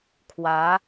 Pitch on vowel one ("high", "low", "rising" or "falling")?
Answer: rising